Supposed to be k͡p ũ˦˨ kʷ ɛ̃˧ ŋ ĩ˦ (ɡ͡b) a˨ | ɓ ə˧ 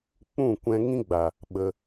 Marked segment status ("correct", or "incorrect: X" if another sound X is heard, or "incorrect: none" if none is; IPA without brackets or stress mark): correct